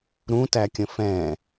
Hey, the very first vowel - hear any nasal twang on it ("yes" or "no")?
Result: yes